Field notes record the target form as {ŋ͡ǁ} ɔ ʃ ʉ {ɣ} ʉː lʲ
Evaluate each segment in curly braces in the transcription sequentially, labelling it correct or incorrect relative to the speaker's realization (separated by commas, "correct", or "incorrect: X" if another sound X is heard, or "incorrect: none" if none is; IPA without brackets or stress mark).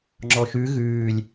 correct, correct